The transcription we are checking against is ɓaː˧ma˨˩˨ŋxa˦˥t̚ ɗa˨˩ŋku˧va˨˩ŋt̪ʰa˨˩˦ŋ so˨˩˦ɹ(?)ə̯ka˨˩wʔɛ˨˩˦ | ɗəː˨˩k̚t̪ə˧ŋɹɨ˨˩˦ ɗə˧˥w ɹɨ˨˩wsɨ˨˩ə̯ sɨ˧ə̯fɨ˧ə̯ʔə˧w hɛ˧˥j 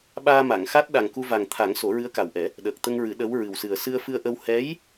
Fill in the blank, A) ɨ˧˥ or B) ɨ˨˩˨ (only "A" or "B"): A